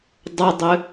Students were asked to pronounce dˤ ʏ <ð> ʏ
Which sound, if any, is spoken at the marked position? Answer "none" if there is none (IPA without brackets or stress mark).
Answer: dˤ